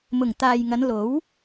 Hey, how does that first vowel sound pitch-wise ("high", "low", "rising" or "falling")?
low